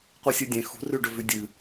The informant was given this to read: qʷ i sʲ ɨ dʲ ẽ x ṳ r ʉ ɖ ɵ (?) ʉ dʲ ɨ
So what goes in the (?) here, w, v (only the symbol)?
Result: v